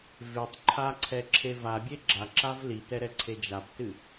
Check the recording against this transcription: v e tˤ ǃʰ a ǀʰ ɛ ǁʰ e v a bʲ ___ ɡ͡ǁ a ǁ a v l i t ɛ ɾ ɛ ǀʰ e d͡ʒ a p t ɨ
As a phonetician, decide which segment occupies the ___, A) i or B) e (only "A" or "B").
B